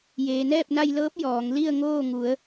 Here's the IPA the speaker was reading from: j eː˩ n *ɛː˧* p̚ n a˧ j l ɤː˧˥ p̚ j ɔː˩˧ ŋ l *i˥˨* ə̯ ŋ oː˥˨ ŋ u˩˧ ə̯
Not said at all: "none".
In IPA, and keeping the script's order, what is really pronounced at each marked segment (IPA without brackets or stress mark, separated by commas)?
ɛː˥˨, i˥˨